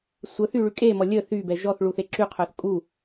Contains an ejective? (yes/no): yes